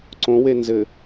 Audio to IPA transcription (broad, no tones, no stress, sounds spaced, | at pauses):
ǀ õ w e n z ɘ